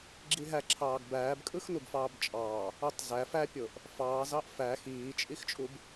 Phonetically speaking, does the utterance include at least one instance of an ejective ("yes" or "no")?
yes